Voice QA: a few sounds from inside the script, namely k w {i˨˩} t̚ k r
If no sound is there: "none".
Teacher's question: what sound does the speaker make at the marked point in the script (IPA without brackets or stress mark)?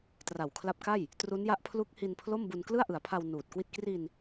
i˥˩